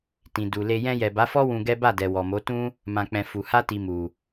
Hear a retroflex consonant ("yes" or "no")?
no